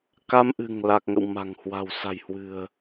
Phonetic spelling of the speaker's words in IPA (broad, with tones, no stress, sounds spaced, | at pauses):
k a˧ m ʔ ɨ̤˨˩ ŋ l a˨˩ k̚ ŋ ə̰˧˨ w m a̤˨˩ ŋ h w a̤˨˩ w s a̤˨˩ j h w ɨ̤˨˩ ə̯